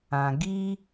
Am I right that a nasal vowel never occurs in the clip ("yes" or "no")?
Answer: no